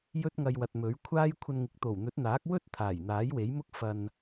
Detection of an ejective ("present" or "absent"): absent